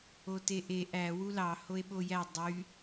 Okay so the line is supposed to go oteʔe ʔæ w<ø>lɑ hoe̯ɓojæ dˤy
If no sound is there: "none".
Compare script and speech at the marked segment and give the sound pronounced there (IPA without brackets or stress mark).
u